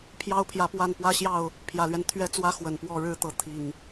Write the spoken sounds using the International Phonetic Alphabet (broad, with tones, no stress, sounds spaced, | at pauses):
pʰ j ɑ˦ ʊ̯ pʰ j ä˨˦ p w a˥˨ n p w ä˦ ɕ j ɑ˥˨ ʊ̯ | pʰ j ä˨˩ l ɥ ɛ˦ n t̪ʰ ɥ ɛ˦ t͡s w ä˦ x w ə˨˩ n p w ɔ˥˨ ɻ ɻ̩˥˨ t̪ ɤ˨˦ t̪ʰ i˨˩ ŋ